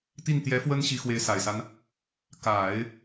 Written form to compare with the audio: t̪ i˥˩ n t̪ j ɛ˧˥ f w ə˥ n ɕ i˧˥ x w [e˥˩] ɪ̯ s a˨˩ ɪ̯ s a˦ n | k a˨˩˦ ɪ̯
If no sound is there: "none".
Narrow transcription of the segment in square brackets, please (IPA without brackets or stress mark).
e˧˥